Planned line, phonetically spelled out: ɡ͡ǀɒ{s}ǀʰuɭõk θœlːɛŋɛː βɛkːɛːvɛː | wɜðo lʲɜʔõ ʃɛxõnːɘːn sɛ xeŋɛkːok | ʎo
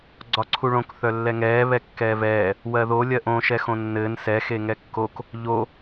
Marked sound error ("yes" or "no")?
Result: yes